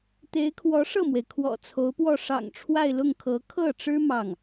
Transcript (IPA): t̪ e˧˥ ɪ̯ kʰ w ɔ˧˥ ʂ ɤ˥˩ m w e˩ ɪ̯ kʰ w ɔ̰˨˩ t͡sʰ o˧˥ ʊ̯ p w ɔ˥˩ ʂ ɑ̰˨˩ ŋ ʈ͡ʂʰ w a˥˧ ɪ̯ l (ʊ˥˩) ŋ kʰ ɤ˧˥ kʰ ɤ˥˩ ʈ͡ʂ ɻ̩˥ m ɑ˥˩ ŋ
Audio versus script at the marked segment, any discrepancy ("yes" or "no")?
no